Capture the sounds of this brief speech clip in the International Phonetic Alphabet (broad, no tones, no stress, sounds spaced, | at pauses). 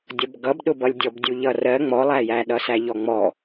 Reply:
dʲ ʌ b ɡ ʌ b ɗ ʊ b ʌ lʲ dʲ ɔ b dʲ u ʎ ʌ r ɜ ŋ͡m ɔ lˠ æ j æ ɗ ʌ s æ ʎ ɔ ŋ͡m ɔ